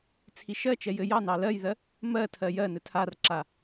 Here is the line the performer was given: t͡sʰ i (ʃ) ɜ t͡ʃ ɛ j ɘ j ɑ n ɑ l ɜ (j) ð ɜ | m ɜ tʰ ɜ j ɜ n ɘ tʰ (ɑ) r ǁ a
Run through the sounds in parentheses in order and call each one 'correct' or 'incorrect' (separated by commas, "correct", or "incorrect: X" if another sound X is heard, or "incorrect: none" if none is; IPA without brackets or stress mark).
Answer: correct, correct, incorrect: a